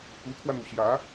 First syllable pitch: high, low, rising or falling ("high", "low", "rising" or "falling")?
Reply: rising